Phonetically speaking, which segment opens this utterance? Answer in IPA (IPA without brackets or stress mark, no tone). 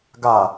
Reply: ɡ